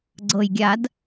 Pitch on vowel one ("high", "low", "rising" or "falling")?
low